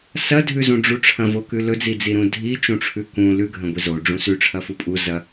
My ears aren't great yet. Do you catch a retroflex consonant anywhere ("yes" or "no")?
yes